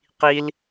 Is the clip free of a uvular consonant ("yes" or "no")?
no